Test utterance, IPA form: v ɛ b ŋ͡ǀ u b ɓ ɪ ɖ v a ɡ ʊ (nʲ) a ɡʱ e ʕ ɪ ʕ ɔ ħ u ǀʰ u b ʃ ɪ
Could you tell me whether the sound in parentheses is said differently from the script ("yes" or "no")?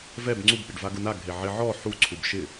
yes